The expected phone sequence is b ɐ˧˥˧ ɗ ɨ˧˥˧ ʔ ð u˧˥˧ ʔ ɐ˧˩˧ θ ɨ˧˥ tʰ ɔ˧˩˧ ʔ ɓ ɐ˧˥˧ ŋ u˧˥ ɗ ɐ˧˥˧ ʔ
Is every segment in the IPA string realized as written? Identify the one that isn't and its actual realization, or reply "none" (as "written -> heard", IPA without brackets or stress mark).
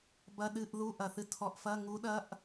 ɓ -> f